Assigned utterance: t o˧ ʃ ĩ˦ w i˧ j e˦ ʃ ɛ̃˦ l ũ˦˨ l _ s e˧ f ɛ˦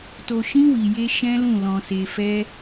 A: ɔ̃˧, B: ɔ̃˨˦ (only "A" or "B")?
A